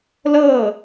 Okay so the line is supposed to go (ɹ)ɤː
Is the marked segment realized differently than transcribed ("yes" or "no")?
yes